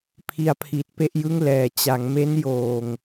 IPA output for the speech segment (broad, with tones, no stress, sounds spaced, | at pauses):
pʰ i˧ a̯ pʰ i˨˩ t̚ p e˥˩ ʔ j ɯ˥˩ ŋ l ɛː˩˦ t͡ɕ a˩˦ ŋ m e˦˥ n j oː˨˩ ŋ